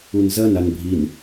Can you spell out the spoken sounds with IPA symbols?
u n z ɐ n a n bʱ i n

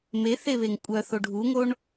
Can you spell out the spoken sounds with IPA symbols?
m e θ e β e ŋ kʷʼ œ θ o ɖʱ u ŋ o ɳ

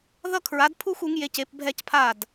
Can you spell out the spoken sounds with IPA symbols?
ð ʌ˥˧ kʰ ɹ a˨˥ d pʰ u˥˧ x u˨˥ ŋ j e˨˥ c e˨˥ p bʱ ɛ˥˧ c pʰ a˥˩ d

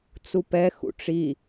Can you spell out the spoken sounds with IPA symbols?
t͡s u p ɛ x ṵ ʈ͡ʂ i

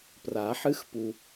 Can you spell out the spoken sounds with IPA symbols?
p r a˨˩˦ ħ ɨ˦ x p u˨

